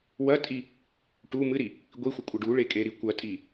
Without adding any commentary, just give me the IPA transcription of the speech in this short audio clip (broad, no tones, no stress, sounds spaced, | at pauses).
w ɐ tʼ i | ʈ u m ɨ ɾ i | ɡʷ i xʷ ə kʷʼ ə ɖ u ɭ e kʼ e ɾ i kʷ ɐ tʼ i